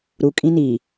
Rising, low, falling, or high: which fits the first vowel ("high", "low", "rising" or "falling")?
low